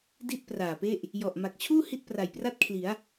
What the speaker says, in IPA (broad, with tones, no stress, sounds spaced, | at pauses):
d i˥˩ t̚ p r aː˨˩ p e˥˩ ʔ | j ɔ˨˩ ʔ m a˨˩ k̚ t͡ɕʰ uː˥˩ h i˥˩ t̚ p r a˨˩ j p r a˥˩ t̚ kʰ l i˩˦ a̯